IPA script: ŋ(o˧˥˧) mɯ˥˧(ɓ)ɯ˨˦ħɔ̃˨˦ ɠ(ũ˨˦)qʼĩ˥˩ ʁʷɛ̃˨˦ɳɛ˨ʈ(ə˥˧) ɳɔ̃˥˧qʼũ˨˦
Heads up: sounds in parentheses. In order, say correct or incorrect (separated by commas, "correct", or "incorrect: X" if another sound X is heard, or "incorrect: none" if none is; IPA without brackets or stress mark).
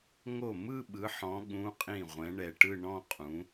incorrect: o˥˩, correct, incorrect: ũ˧˥˧, incorrect: ɯ˥˧